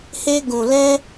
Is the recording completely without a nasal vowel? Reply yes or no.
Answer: no